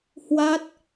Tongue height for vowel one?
low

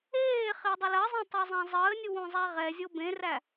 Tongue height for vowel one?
mid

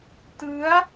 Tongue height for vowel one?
high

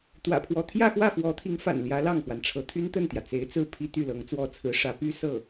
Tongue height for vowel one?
low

